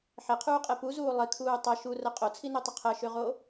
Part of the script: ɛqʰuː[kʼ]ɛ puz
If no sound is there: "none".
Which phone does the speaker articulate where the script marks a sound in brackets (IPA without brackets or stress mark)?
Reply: qʼ